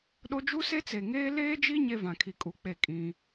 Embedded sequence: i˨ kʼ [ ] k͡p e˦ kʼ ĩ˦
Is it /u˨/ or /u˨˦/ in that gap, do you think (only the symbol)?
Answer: u˨˦